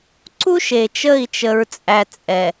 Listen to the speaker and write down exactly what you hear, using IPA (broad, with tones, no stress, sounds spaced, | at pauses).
ǀ u˦ ʃ e˨ t͡ʃ ə˦˨ i̯ t͡ʃ ə˦ ɹ t͡sʼ æ˦ t͡sʼ ɛ˨